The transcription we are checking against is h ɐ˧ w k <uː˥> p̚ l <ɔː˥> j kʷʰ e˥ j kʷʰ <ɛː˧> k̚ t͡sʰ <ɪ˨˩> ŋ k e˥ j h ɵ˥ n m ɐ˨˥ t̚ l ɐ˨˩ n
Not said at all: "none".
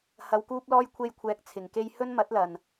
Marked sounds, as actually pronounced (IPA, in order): uː˥, ɔː˥, ɛː˧, ɪ˨˩

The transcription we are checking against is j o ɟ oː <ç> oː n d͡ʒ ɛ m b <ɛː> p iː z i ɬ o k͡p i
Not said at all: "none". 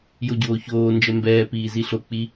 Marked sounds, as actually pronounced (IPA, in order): ç, ɛː

